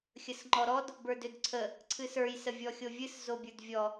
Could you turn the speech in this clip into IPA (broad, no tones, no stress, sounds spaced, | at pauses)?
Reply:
xʲ ə s ŋ͡ǃ ɔ ɾ ɔ d | b ə˞ d ø d ǀʰ ə | ǀʰ ɨ s ə˞ j s ə vʲ ɔ xʲ o vʲ ɨ s z o bʲ ə˞ d vʲ ɔ